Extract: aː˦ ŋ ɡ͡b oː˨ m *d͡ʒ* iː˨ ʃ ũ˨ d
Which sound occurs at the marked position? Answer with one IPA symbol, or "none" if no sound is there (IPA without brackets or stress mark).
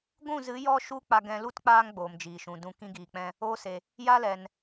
d͡ʒ